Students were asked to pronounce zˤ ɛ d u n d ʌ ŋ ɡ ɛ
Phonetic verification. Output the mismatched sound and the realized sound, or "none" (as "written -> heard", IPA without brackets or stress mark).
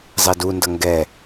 none